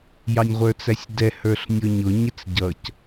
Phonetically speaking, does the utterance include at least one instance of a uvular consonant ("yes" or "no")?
yes